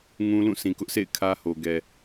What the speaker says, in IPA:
ŋ ũ˦ l ũ˦˨ s ĩ˨ k ʊ˦ ʔ sʰ ḛ˦˨ ɪ̯ kʰ ä˦ h o˨ ɡ ɛ˨

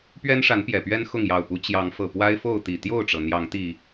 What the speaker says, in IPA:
p ɥ ɛ˦ n ʂ a˨˦ n p j ɛ˨˩ p ɥ ɛ˦ n x ʊ˥˨ ŋ j ɑ˨˩ ʊ̯ p u˨˦ t͡ɕ j ɑ˨˦ ŋ f ɤ˨˩ p w a˦ ɪ̯ f o˥˨ ʊ̯ t̪ i˨˩ t̪ j o˥˨ ʊ̯ ʈ͡ʂ ɤ˩ n̪ j ɑ˨˦ ŋ t̪ i˨˩

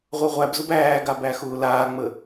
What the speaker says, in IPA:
ʁʷ ɤ ʁʷ æ b z ʊ b æː ɡ a b æ x ʊː l aː ŋ͡m ə

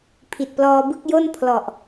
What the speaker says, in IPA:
pʰ i˨˩ t̚ p l ɔː˧ b ɯ˥˩ k̚ j o˥˩ n pʰ l ɔ˨˩ ʔ

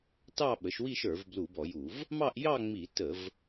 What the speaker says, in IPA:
t ɑ˥˧ ɓ ə˩˥ ʃ w i˥˧ ʃ ə˞˧˩˧ v b l u˧˩˧ b ɔ˧˩˧ j u˧˩˧ v | m ɑ˥˧ ʔ j ɑ˥˧ ŋ͡m i˧˩˧ t ə˧˩˧ v

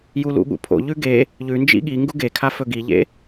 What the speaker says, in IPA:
j u l ṵ ɠ ṵ pʰ o̰ ʎ ʉ ɡ e | ʎ ʉ n d͡ʒ ḭ ɠ i ŋ ɡ u ɡ e kʰ a f ɵ ɡ i ʎ ḛ

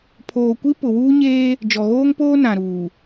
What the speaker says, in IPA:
pʰ oː˨ kʷ i˦ p ʊ˨ w uː˦ ɲ eː˦ | d͡ʒ ɔ˨ ɣ oː˦ ŋ p oː˦ n ã˨ ɾ uː˨

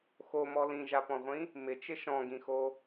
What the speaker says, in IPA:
x o m ɔ l ĩ ʒ a p ɔ̃ ʁʷ ĩ | m ɪ t͡ʃ ɪ ʃ ɔ̃ ɡ ĩ x o

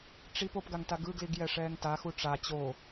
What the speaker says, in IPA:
ʈ͡ʂ i p o p ɡ a ŋ t a ɡ ɯ ɡ l i ɡ j ɛ ʂ ɛː ŋ t a x u ʈ͡ʂ a t͡ɕ o

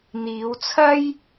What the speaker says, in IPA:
n̪ iː˨˧ w t͡sʰ ɐ˥ j

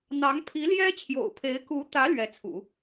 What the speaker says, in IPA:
n̪ ɑ˧˥ ŋ pʰ i˧˥ l j ɛ˥ t͡ɕʰ j o̰˨˩ ʊ̯ pʰ e˧˥ ɪ̯ k u˧˥ t̪ ä˧˥ l ɥ ɛ˧˥ t͡sʰ ṵ˨˩˦

